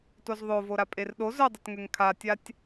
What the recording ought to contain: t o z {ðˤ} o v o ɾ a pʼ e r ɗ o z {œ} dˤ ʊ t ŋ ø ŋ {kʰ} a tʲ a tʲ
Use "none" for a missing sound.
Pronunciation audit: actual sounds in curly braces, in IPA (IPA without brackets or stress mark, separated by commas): ðˤ, œ, kʰ